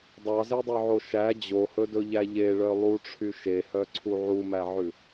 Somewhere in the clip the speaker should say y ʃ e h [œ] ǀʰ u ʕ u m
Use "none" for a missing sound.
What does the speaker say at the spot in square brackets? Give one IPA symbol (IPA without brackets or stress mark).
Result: œ